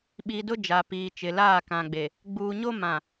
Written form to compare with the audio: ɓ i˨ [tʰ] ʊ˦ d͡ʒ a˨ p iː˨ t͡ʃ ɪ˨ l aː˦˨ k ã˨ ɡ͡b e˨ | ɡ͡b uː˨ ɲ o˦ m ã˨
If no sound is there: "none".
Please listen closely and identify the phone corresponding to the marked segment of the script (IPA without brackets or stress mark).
d